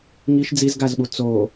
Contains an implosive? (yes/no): yes